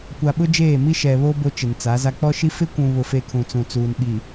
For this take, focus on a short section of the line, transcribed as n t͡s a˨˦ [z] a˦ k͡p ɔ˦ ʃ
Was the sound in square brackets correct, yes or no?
yes